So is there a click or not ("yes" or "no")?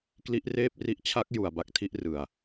no